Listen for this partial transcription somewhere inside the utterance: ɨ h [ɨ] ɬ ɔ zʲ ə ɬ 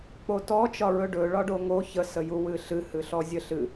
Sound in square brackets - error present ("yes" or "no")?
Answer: no